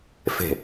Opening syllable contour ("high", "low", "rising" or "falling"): falling